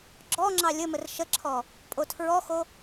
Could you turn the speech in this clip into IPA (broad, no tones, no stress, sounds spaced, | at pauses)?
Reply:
ɡ͡ǁ ɔ ŋ͡ǁ ɑ lʲ ə m ə r ʃ ə ǁʰ ɔ | pʼ o tʰ ɹ ɔ x o